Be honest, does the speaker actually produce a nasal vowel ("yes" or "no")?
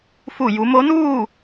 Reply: no